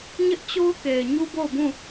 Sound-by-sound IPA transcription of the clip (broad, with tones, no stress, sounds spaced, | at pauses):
ɲ ɪ˦ ʔ t͡ɕ o˦ ʊ̯ k e˨ ɪ̯ ɲ u˦ b o˦˨ ʊ̯ b ũ˦˨